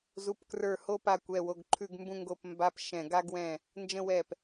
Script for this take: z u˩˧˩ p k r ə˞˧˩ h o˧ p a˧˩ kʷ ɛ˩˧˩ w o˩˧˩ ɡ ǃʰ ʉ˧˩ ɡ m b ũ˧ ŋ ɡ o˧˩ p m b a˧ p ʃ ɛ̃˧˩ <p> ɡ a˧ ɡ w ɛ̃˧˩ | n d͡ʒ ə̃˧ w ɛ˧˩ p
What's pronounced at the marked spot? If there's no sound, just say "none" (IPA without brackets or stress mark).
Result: none